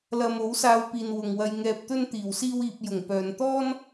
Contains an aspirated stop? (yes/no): no